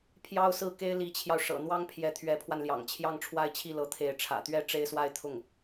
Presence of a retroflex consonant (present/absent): present